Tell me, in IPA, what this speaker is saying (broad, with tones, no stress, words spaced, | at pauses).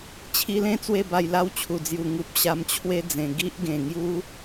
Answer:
t͡ɕʰi˧lẽ˥˧ t͡swe˥˧ba˧jla˦w t͡ɕʰu˨˩d͡zju˨˩ ŋu˨p̚ ɕa˧mt͡ɕʰwe˦d͡zẽ˨˩ ɡi˦ʔɡẽ˨˩ŋju˦